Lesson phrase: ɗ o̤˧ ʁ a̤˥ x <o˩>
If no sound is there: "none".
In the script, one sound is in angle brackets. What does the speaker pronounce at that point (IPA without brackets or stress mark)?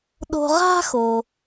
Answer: o˩